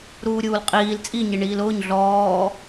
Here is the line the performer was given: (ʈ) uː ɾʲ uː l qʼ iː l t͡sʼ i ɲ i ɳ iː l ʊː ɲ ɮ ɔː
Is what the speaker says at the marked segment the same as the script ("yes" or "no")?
no